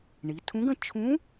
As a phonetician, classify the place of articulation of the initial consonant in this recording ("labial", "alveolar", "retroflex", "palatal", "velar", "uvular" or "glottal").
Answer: retroflex